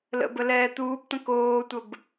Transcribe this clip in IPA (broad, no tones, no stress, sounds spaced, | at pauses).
l ə̰ b ə l ɛː t̪ uː b t̪ ə̃ k oː tʷ ə b